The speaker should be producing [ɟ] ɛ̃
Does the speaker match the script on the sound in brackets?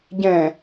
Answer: yes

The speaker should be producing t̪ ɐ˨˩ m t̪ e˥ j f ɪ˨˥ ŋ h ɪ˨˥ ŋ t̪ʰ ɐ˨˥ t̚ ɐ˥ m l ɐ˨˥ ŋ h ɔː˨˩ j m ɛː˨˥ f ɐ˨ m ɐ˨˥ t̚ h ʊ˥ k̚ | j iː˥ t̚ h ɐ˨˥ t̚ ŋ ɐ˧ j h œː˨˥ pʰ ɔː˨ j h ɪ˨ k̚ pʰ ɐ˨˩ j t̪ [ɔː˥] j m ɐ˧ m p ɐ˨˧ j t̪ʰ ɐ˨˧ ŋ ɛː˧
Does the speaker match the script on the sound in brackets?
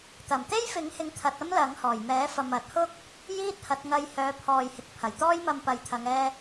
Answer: yes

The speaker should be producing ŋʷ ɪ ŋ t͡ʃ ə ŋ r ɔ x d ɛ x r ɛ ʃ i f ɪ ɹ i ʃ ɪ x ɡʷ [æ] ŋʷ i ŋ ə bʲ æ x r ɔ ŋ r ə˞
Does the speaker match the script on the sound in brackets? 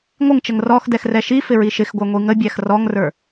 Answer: yes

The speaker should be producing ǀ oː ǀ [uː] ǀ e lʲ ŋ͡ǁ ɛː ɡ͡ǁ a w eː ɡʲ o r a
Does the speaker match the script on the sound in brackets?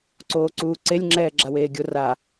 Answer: yes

